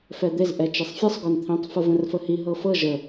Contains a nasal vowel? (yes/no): yes